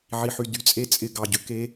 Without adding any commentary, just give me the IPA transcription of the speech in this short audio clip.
ʕ i˧ ħ y˧ d y˧ t͡sʼ e˦ t͡sʼ ɪ˦ ɡ ɑ˧ ɟ ʏ˦ k e˦

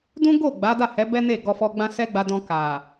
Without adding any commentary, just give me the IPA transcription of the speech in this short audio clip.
d ũ˦ ɡ o˦˨ ɡ͡b a˨˦ d a˦˨ h ɛ˨˦ b ɛ˦ n e˦˨ ɡ ɔ˧ f ɔ˧ ɡ͡b ã˦ s ɛ˦ ɡ͡b a˧ d ɔ̃˧ k a˨

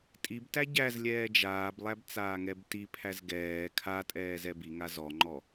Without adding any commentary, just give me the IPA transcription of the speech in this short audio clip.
tʼ i b t æ ɟ æ z lʲ ɛː d͡ʒ aː b lˠ æ b t͡s aː ŋ ɛ b t i pʰ æ z ɡ ɛː kʰ a tʼ ɛː z ɛ b i ŋ a z ɔ ŋ͡ǃ ɔ

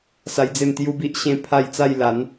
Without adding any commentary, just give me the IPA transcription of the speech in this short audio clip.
s a˧ j d͡z e˥˧ m t̪ j u˦ b i˦ ʔ ɕ ẽ˥˧ pʰ a˥˧ j t͡s a˥˧ j l a˨˦ n

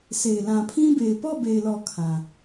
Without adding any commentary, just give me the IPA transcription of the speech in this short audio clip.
sʰ e˨ ɪ̯ l ã˨ pʰ ĩ˦ b e˨ ɪ̯ p ɔ˦˨ b e˨ ɪ̯ l ɔ˨ kʰ ã˨

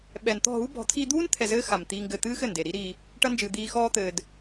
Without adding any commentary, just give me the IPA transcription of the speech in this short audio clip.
ɓ ɛ˨ n t̪ ɔ̤˦˨ ɦ u˦ b ɔ̤˨˦ t̪ʰ iː˧ d̪ uː˦ n t̪ʰ ɛ˧ z ɘː˦ x a˨ m t̪ iː˧ ŋ ɡ ɘː˧ t̪ ɨː˦ x ɘ˦˨ n d e˨ ɾ i˦ ɾ iː˧ | ʈ ɐ˦ n d͡ʒ ɨː˧ d̪ iː˧ x ɔː˦ t̪ ɘː˧ d

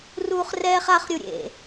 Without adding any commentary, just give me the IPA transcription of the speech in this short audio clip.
r uː χ r ɛː χ a χ ɾʲ u ɾʲ ḛ

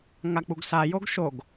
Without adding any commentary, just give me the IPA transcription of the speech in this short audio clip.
ŋ a k͡p u ɡ s a j o ɡ ʃ o ɡ

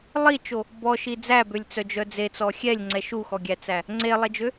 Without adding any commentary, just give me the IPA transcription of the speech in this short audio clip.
lˠ i t͡ʃ o | b ɔ ʃ i d͡z æ b ø lʲ t͡s œ d͡ʒ œ d͡z e t͡s ɔ xʲ ɛ lʲ ŋ͡ǀ ɛ ʃ u x ɔ ɡʲ æ t͡s æ | ŋ͡ǀ e lˠ ɛ d͡ʒ ø

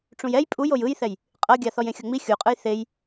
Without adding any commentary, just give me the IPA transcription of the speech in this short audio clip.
ʈ͡ʂ ũ j ɛ j pʼ u j o j ɯ j θ ɛ j | qʼ ɤ ɡʲ a θ ɔ j ẽ xʲ ɤ ŋ͡m i xʲ u qʼ ɯ j θ e j

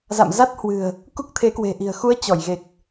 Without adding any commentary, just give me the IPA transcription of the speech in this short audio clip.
z a̰˧˨ m z a˦˥ t̚ h w ɨ̤˨˩ ə̯ | k u˦˥ k̚ t̪ʰ e˨˦ k w e̤˨˩ ʔ i̤˨˩ ə̯ x u˨˦ ə̯ t͡ɕ ɔ˧˩ j ɣ e˨˩ k̚

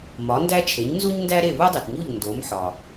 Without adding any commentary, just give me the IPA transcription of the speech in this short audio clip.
m ɒ˩˥ n d æ˥ t͡ʃʰ e˩˥ ɲ n z u˥ ɲ n d æ˥ ɾ e˥˩ β u˥ dˤ i˩ t ɲ u˥˩ ʎ n d o˩˥ m ħ ɒ˩

